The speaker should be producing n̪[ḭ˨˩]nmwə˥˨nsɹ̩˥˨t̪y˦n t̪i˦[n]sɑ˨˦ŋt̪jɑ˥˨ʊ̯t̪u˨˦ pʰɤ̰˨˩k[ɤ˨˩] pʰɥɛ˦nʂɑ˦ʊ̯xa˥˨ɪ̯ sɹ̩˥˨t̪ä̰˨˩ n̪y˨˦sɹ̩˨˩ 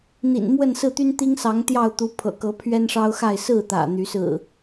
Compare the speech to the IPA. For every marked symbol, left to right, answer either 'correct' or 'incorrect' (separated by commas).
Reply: correct, incorrect, incorrect